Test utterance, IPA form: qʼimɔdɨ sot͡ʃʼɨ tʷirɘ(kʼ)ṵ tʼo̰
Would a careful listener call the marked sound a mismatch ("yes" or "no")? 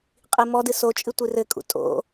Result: no